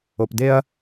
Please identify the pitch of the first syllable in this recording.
low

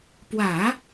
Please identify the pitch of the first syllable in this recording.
low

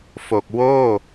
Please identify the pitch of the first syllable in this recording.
low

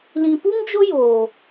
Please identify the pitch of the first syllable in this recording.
low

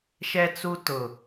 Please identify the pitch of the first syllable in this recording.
low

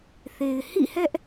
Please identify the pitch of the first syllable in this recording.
low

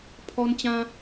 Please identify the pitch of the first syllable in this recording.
high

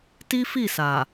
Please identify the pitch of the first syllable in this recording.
high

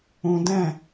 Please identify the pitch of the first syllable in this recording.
low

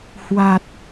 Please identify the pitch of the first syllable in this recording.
low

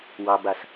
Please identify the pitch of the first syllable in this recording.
low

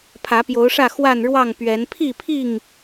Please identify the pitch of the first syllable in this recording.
rising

